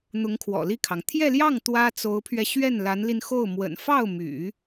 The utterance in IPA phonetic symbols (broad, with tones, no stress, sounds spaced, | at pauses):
n̪ ʊ˧˥ ŋ kʰ w ɔ̰˨˩ l i˥˩ kʰ ɑ˩ ŋ t̪ʰ j ɛ˥˧ l j ɑ˥˩ ŋ t̪ w ä˥ t͡s o˧˥ ʊ̯ pʰ ɥ ɛ˧ ɕ ɥ ɛ˥˩ n l a˧˥ n l i˧ n x o˥˩ ʊ̯ m w ə̰˨˩ n f ɑ˥˩ ʊ̯ m y̰˨˩˦